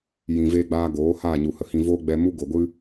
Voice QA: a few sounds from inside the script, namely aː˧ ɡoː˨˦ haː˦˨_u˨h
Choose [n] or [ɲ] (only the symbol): ɲ